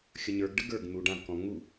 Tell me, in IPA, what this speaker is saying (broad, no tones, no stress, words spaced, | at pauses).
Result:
xʲəɲə˞ɡɖə ɡə˞ɡ n̪uɖãvkɔ̃ ŋu